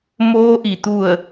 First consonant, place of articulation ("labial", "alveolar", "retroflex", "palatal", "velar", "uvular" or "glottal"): labial